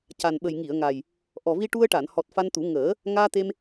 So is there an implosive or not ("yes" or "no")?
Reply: yes